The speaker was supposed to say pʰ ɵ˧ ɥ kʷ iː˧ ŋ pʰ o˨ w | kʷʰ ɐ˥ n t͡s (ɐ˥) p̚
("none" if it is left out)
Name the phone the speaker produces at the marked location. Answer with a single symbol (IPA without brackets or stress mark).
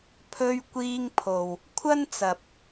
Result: ɐ˨